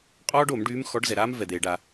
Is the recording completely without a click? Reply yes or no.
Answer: yes